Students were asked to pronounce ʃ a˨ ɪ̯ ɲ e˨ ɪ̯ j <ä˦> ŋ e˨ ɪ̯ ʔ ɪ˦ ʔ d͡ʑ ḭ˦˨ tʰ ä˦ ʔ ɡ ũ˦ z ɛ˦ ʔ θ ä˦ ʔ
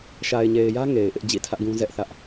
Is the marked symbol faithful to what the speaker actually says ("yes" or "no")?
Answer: yes